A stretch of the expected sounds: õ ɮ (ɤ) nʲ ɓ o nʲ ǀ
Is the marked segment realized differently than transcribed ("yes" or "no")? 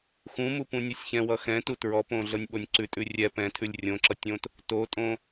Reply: no